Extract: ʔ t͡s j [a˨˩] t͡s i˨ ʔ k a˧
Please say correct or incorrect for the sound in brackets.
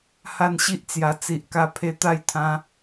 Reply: correct